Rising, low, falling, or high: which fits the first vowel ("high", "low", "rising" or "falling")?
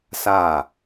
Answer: falling